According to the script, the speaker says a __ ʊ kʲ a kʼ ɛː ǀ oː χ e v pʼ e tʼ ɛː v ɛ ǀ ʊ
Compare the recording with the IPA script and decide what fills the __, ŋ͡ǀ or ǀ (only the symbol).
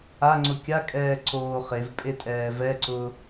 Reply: ŋ͡ǀ